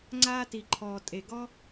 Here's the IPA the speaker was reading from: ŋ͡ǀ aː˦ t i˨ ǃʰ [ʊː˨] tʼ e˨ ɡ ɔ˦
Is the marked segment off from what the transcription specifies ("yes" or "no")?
yes